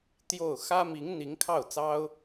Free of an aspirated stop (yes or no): no